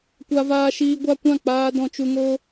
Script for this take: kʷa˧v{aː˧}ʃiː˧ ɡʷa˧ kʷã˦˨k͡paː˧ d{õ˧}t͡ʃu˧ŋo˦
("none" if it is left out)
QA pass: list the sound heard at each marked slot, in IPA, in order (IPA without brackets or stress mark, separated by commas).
aː˧, ɔ̃˧